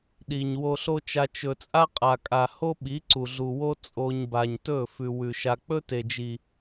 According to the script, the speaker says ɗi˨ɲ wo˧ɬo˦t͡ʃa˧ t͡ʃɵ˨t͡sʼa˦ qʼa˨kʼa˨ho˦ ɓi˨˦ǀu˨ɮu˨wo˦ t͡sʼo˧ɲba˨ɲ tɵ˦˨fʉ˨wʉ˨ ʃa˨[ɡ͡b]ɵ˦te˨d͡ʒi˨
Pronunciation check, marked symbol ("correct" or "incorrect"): incorrect